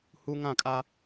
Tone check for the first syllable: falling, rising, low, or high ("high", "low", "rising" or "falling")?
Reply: high